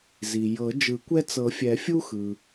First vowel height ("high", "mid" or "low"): high